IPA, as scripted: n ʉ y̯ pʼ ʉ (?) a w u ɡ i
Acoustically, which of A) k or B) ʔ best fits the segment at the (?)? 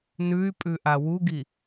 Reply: B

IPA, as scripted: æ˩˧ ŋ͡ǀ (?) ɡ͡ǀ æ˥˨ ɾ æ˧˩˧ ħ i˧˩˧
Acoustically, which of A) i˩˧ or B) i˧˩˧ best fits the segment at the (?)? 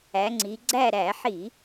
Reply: A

